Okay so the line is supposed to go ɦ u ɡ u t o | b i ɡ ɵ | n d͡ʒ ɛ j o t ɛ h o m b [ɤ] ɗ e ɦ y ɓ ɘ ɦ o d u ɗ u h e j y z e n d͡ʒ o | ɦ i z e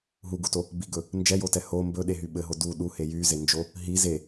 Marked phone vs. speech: incorrect: ɵ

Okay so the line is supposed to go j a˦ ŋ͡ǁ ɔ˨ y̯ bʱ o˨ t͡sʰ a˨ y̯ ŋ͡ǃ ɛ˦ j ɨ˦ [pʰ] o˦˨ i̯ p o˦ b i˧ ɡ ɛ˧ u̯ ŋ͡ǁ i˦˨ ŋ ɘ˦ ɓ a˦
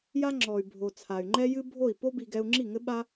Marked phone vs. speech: incorrect: bʱ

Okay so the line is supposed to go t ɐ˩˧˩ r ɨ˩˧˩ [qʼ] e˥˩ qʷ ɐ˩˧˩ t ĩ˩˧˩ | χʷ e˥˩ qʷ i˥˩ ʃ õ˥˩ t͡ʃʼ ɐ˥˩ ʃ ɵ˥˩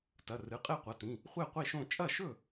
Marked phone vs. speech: correct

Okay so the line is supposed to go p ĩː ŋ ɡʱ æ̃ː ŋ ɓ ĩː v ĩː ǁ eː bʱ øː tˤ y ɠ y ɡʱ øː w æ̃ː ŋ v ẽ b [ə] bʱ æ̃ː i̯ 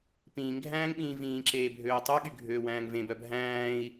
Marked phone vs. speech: incorrect: œ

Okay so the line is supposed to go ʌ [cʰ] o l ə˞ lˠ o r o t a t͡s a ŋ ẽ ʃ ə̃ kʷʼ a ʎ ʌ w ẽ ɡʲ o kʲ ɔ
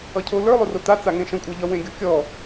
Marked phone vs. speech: correct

